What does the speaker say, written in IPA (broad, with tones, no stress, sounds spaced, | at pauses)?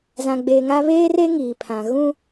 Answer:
z ã˨ ɡ͡b e˨ ŋ a˦ β eː˦ r e˦ ŋ iː˨ pʰ ã˨ ɣ ũ˦